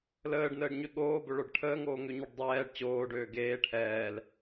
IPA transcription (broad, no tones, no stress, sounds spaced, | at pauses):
l əː ɖ n əː ɖ ɲ ø ɠ oː b ɵ ɭ œ ɖ ʈʰ əː ŋ oː ŋ ø ɲ ʉ ɖ dˤ ɛː ɖ t͡ɕ oː ɖ øː ɡ eː ʈʰ ɛː l